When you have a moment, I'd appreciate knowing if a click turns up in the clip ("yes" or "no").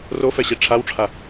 no